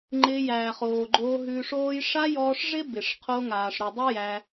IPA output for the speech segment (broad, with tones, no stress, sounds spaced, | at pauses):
ŋ͡ǃ ɪː˧ j æː˨ χ oː˨ ɡ͡ǃ oː˧ ɦ ʉ˧ ʂ oː˦ j ʂ a˦ j ɔː˧ ʂ ʐ ɪ˦ b ɪ˨ ʂ qʰ o˧ ŋ aː˨ ʂ ɾ ʉ˨ dˤ ɪ˦ j æ˧